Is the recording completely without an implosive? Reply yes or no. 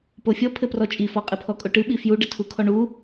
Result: no